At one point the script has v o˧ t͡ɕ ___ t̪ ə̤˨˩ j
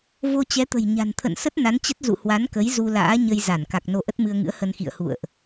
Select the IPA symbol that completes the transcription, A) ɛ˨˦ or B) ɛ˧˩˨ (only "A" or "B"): A